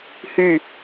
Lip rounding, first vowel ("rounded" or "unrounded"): rounded